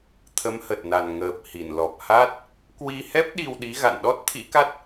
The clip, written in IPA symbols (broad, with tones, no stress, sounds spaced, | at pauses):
t̪ʰ ə˨˦ m h ə˨˩ t̚ n a˨˩ n ŋ əː˨˩ p̚ h i˧˩ n l ɔ˨˩ p̚ h a˦˥ t̚ | k w i˧ h ɛ˦˥ p̚ ɗ i˧ w ɗ i˨˦ ɣ a̰˧˨ n ɗ ɔ˦˥ t̚ t̪ʰ ḭ˧˥ k a˦˥ t̚